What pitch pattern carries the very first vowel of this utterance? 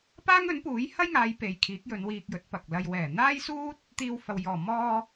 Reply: high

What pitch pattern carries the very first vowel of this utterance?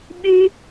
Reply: high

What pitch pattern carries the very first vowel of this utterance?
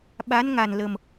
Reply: rising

